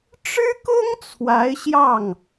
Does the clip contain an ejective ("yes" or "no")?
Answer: no